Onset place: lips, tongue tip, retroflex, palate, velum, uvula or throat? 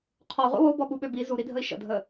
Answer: uvula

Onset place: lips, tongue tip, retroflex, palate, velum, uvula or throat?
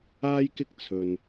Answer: palate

